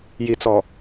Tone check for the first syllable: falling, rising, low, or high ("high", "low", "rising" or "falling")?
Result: low